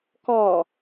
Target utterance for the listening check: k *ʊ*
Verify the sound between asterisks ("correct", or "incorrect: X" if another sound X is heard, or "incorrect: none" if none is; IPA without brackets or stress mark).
incorrect: ɔ